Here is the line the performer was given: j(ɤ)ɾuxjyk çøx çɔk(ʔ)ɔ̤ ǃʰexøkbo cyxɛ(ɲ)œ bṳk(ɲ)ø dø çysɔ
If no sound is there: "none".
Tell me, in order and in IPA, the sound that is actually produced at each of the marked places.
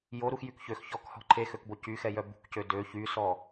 o, h, j, c

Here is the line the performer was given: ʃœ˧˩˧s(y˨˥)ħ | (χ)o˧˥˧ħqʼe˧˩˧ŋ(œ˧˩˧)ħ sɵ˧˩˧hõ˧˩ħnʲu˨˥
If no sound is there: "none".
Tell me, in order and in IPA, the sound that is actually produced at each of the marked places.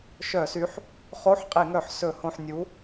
y˨˥, χ, œ˧˩˧

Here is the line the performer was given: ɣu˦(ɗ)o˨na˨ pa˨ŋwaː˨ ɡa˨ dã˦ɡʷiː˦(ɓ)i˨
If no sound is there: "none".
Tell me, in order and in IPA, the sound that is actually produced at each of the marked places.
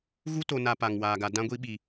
t, ɓ

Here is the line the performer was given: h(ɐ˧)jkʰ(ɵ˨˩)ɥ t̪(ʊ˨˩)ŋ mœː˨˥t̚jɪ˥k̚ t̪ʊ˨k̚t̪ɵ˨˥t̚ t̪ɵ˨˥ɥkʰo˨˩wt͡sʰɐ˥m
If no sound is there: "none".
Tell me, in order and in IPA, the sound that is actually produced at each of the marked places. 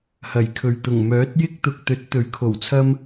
ɐ˨˩, ɵ˨˩, ʊ˨˩

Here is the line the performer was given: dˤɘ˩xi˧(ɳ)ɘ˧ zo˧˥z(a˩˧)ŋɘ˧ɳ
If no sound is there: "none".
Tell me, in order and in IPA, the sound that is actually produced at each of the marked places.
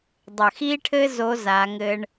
ʈʰ, a˩˧

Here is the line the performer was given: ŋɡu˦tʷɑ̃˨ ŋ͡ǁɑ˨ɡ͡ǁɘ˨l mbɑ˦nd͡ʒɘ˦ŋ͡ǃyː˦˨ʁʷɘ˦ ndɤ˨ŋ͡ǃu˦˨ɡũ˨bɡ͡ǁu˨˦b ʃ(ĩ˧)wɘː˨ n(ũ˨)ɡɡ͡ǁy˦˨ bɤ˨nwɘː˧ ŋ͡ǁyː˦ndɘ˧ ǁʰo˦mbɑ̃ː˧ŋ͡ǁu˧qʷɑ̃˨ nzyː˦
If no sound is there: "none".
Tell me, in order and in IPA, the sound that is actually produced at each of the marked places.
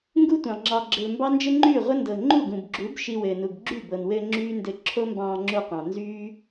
i˧, u˨

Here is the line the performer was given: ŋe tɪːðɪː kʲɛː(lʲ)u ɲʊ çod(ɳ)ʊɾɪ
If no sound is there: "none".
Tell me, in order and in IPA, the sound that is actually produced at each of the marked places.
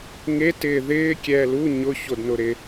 l, n

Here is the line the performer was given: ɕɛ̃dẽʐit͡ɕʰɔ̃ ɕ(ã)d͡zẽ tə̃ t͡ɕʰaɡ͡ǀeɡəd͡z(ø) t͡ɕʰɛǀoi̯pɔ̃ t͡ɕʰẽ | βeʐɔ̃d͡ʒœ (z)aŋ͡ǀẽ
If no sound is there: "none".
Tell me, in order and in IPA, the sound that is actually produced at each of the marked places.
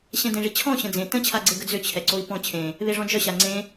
ə̃, ø, ɕ

